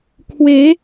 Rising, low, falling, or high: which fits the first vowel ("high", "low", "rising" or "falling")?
rising